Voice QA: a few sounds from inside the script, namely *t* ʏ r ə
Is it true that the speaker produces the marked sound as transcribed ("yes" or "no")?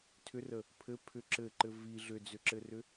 no